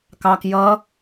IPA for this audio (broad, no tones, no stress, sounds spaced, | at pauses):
k ɑ k j ʌ